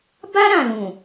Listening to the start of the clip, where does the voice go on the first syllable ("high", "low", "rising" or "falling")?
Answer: high